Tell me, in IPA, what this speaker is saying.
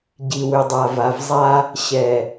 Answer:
ɟ i˨ w ʏ˨ dˤ a˨ v a˨ v zˤ a˦ | ɕ ɛ˨

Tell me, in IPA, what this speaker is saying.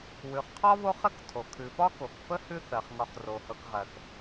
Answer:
w ʉ˩ χ qʰ ɒ˥ β o˥ χ ə˥ k tʰ o˩ kʰ ʉ˩ f ɒ˥ k o˩ k f ə˥ h ʉ˦ θ ɜ˩ χ ŋ ɒ˨ χ r o˩ h ɤ˨ k ʁ ɜ˩ k

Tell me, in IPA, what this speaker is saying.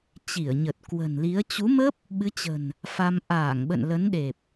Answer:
t͡ɕ i˧˩ ə̯ ɲ ə˨˩ t̚ k w ə̤˨˩ n l i˨˦ ə̯ t͡ɕ u˨˦ m ə˦˥ p̚ | ɓ ɨ˨˦ t͡ɕ ə̤˨˩ n | f a˧ m ʔ aː˧˩ ŋ ɓ ə̰˧˨ n l ə˨˦ n ɗ e˨˩ p̚

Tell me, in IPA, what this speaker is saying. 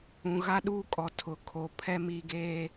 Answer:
ũ˨ ɣ a˦ ɗ uː˦ kʼ ɔ˨ tʰ ʊ˨˦ kʰ o˨ pʰ ɛ˦ m i˦ ɡ eː˦

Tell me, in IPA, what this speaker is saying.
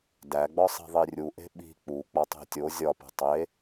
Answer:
d æ ɡ͡b ɒ sˤ i̤ ðˤ i rʲ u ʔ e̤ ɓ i̤ k͡p u k͡p ɒ tˤ e̤ tʲ o zʲ ɒ p ṳ tˤ e

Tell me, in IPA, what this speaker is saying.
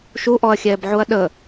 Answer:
ʃ u ʔ ɔ ɐ̯ xʲ ɛː b ʕ u ɐ̯ ɗ ə

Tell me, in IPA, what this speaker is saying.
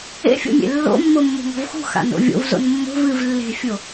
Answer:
ḛ fʲ o̰ mʲ ḛ lː o̰ mː o mː o̤ ŋ ɔ̤ v x ṳ x a̰ n o̰ vʲ o̰ v z o̰ n mː o̤ v ɨ v lː e̤ fʲ o

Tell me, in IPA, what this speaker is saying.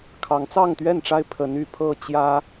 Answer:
kʰ ɑ˨˦ ŋ t͡s ɑ˥˨ ŋ t̪ ɥ ɛ˥˨ n ʈ͡ʂ a˦ ɪ̯ pʰ ə˨˦ n y˨˩ pʰ ɤ˥˨ t͡ɕ j ä˦

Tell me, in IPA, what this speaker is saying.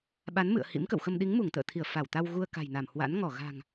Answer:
ɓ a˨˦ n m ɨ̰˧˨ ə̯ h ḭ˧˥ m k ə̰˧˨ w x ə˧ m ɗ i˨˦ ŋ m u˧˩ ŋ t̪ ə̰ː˧˨ t̪ʰ i˧˩ ə̯ f a˧˩ w t̪ a˧ w ɣ u˧ ə̯ k a̤˨˩ j n a˧˩ m h w a̰˧˥ n ŋ ɔ˧˩ ɣ a̤˨˩ ŋ

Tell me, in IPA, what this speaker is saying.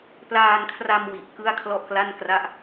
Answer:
p l aː˧ n kʰ r a˧ m w i˨˩ ʔ k ɯ˥˩ a̯ kʰ l ɔ˥˩ ʔ k l a˥˩ n k r a˥˩ ʔ

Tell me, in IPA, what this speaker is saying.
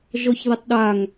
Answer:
ʒ ɔ ç ð i tˤ ɗ a ŋ

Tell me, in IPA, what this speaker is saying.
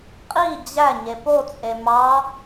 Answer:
qʼ i d͡ʑ æ ɲ e p o t͡sʼ e m ɑ

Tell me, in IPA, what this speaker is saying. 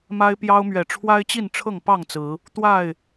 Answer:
m a˦ ɪ̯ p j ɑ˦ ʊ̯ m ɥ ɛ˨˩ ʈ͡ʂʰ w a˦ ɪ̯ t͡ɕ i˥˨ n ʈ͡ʂʰ ɤ˥˨ ŋ p ɑ˥˨ ŋ t͡s ɹ̩˨˦ | t̪ w a˥˨ ɪ̯

